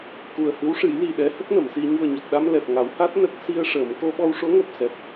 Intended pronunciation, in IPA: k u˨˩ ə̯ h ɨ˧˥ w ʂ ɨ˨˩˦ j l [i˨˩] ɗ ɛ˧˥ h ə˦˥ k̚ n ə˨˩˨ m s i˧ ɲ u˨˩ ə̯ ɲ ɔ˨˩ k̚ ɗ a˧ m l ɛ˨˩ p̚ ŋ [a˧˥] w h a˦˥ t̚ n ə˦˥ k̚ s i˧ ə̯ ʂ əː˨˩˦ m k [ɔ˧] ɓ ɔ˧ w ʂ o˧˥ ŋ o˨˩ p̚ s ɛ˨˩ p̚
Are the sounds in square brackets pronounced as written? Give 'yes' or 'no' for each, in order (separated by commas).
yes, no, no